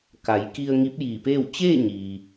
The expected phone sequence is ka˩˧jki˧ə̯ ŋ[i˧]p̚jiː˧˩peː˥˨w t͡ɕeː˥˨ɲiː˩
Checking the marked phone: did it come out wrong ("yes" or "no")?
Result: yes